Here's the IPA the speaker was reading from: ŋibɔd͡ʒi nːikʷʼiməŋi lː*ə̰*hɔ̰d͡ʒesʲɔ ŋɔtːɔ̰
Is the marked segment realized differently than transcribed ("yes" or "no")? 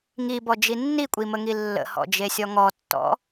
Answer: no